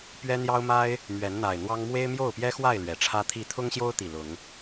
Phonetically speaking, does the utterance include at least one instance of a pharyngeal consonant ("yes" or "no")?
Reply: no